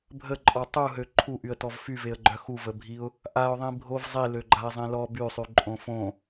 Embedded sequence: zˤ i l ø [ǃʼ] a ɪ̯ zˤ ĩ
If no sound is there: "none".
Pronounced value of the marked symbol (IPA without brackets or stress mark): ɡ͡ǃ